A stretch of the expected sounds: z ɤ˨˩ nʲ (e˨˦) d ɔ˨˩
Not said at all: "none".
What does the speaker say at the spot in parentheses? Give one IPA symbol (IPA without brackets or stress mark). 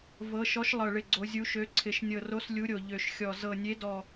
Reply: e˨˦